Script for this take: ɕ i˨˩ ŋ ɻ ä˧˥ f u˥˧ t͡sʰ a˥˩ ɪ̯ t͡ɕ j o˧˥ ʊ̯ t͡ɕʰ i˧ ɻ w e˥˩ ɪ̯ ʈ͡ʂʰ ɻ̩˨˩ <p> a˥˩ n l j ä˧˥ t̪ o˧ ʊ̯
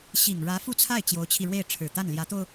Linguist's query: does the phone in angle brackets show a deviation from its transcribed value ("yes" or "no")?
yes